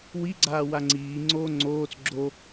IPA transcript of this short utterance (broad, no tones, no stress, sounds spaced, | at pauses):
w i ɡ͡ǀ aː w a ŋ͡ǀ iː ŋ͡ǀ oː ŋ͡ǀ oː t͡s ɡ͡ǁ o